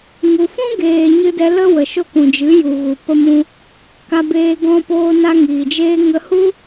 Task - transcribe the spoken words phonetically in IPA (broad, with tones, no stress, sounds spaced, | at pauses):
ŋ u˨ f ũ˦ ɡ eː˨ ɲ ɨ˧ d ɛ˧ l ə˦ w ə˨ ʃ o˦ k ũ˨ d͡ʒ ɨ˨˦ j u˨ ɣ u˨ p ə˧ m ũ˧ | k a˧ b eː˧ ɡ ɔ̃˧ p oː˧ n a˧ ŋ iː˨ d͡ʒ eː˦ ŋ ə˧ h u˦